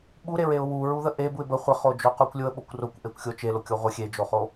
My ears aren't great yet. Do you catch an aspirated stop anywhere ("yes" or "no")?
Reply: no